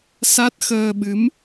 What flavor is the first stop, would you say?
plain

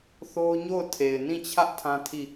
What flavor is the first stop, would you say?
aspirated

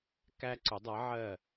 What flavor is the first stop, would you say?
plain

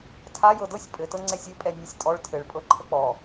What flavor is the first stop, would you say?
aspirated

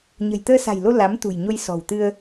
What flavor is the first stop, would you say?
plain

